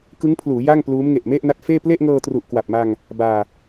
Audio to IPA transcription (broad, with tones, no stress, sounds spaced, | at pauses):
k ɯ˦˥ ŋ pʰ l uː˩˦ j a˥˩ ŋ p l uː˦˥ m ŋ e˨˩ ʔ m e˥˩ ʔ n a˦˥ t̚ f eː˥˩ p l e˥˩ ʔ ŋ ɤː˧ t r u˨˩ ʔ k w a˨˩ p̚ m a˧ ŋ | b aː˧